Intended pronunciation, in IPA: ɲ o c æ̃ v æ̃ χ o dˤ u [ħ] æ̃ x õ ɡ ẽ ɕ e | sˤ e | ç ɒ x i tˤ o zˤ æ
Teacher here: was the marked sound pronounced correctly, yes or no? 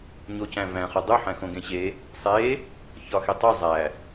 yes